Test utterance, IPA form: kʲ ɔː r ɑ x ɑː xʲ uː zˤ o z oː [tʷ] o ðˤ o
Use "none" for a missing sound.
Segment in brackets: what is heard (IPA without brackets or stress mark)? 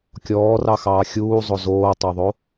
tˤ